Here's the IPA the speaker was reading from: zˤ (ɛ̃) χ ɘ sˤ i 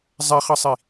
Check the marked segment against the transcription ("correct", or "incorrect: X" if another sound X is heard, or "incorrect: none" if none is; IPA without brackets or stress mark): incorrect: ɛ